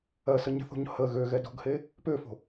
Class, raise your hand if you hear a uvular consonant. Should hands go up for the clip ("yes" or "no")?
no